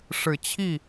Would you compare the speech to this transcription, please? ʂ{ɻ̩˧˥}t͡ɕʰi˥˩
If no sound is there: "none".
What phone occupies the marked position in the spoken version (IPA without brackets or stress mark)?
ɻ̩˨˩